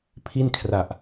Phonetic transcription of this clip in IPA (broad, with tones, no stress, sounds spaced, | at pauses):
pʰ i˥˩ n kʰ r a˨˩ ʔ